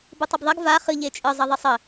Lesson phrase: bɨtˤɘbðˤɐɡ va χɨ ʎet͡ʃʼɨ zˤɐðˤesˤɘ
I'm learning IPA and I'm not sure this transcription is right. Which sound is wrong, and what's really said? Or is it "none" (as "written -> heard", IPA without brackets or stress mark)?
none